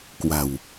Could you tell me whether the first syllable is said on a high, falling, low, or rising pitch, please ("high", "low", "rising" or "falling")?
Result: low